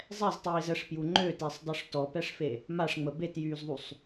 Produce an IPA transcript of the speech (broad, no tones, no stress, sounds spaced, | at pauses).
zˤ ɛ z tˤ iː z ə ʂ p j u ŋ͡ǃ ø t e sˤ dˤ u ʂ t ɔ p ɛ ʂ f e | m a ʂ ŋ͡m ə b e t j yː z ðˤ u sˤ